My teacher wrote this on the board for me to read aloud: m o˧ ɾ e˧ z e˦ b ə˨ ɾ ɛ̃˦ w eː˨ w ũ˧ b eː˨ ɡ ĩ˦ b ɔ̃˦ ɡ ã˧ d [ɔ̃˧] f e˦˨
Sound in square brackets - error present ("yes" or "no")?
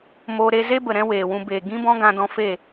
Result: no